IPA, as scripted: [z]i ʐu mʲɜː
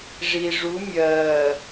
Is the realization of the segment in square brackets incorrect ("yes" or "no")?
yes